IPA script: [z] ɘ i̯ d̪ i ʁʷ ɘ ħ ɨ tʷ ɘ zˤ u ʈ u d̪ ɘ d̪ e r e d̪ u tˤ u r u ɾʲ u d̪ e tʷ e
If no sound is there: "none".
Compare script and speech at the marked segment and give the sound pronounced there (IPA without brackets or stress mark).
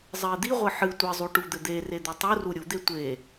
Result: zˤ